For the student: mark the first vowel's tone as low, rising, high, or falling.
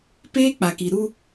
high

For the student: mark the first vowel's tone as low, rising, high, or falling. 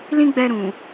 high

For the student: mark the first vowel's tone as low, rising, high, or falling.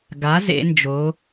rising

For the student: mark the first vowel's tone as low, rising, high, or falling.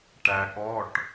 low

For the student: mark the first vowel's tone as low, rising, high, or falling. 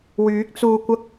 rising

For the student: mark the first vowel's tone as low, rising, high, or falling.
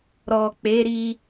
low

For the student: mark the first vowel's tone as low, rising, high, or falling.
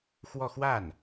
falling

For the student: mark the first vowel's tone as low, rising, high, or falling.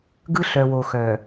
high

